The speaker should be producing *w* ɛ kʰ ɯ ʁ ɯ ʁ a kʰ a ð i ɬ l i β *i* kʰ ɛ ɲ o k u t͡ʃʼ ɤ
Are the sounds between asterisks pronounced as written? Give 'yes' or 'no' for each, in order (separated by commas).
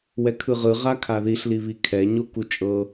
yes, yes